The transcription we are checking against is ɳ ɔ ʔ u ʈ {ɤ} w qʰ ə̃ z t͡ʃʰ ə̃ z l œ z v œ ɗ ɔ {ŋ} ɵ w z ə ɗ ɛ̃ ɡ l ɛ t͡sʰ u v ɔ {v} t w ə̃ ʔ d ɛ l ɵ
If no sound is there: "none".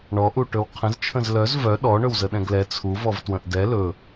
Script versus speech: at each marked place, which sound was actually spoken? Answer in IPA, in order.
ɵ, ɳ, v

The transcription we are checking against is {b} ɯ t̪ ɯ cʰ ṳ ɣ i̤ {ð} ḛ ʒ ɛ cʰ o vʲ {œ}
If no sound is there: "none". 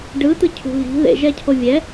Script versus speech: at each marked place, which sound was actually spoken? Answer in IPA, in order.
ɖ, ð, ɛ

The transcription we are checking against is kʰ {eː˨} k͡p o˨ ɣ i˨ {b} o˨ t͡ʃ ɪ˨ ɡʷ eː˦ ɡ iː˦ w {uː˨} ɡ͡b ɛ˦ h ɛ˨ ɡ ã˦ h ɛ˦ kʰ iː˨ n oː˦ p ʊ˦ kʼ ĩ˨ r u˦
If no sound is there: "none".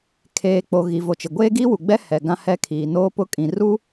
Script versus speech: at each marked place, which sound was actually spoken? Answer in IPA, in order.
eː˨, v, u˨

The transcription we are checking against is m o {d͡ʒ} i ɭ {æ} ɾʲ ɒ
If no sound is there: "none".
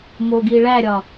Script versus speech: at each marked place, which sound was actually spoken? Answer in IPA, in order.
ɡ, æ

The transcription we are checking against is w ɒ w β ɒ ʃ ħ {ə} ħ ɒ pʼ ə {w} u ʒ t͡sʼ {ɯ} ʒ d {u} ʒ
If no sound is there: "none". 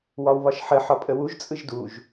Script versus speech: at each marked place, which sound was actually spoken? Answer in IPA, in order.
ə, w, ɯ, u

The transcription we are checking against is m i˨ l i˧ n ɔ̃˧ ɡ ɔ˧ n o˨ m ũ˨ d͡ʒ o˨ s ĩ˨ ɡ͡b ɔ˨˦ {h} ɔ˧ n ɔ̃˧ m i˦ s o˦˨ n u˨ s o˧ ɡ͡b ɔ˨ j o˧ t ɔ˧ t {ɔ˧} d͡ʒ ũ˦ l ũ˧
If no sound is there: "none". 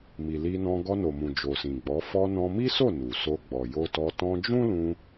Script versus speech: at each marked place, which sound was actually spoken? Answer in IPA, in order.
f, ɔ̃˧

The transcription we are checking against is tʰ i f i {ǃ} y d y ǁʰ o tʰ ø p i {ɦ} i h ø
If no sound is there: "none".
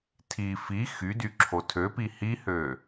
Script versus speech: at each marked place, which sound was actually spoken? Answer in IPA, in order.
x, h

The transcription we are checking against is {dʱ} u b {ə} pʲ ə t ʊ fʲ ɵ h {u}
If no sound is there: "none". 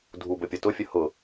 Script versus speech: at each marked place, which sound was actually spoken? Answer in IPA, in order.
dʱ, ə, ʊ

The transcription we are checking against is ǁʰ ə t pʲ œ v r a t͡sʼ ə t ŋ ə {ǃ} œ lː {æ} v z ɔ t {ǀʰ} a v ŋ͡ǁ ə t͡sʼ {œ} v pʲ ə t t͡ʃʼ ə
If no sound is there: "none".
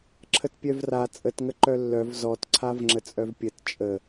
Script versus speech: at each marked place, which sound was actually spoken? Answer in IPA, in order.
ǃ, œ, ǀʰ, œ

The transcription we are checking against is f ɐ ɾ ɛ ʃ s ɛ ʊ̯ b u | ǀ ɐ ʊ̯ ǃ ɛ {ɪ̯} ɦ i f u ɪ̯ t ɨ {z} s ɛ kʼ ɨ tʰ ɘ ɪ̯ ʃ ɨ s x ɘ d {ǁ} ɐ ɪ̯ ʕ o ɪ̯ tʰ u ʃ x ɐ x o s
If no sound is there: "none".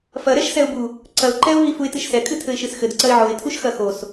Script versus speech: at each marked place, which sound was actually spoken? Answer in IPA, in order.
ʊ̯, ʃ, ǀ

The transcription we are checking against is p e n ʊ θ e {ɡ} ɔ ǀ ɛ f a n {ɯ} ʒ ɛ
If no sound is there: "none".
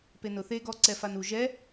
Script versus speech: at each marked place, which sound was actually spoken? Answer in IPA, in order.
ɡ, u

